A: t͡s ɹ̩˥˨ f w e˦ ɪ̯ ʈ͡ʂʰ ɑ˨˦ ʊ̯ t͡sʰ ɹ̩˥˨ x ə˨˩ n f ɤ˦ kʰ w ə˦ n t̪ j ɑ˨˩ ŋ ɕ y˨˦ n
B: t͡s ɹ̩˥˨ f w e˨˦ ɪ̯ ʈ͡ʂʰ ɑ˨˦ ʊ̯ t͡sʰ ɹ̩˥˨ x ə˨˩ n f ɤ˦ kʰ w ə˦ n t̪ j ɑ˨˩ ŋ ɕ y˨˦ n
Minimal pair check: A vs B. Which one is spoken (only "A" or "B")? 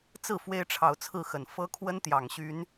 A